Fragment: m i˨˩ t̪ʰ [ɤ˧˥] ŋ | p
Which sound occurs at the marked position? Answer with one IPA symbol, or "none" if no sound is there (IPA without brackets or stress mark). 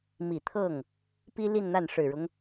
ɤ˥˩